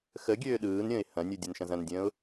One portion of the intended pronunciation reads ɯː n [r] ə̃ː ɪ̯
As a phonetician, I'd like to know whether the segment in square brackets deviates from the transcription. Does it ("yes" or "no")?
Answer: yes